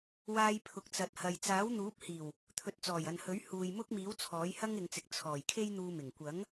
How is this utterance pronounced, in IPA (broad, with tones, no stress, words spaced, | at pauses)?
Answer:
waː˧jpʰʊ˨k̚ t͡sɐ˨t̚hɐ˨j t͡saː˨˥wn̪uː˨˥p̚hiː˨˩w | t̪ʰɵ˨˥t̚t͡sɔː˨˩jɐ˨nhɵ˨˥ɥ huː˨jmʊ˥k̚miː˨˥w t͡sʰɔː˨˥jhɐ˥ŋɪ˨˧ŋt͡sɪ˨k̚ t͡sʰɔː˨˩jkʰe˥j n̪uː˧mɪ˨˩ŋ kʷɐ˨˥ŋ